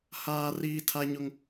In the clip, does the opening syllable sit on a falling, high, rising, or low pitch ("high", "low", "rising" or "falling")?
high